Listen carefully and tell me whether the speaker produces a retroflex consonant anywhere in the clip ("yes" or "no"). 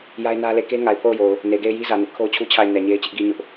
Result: no